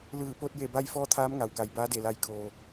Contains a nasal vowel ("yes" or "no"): no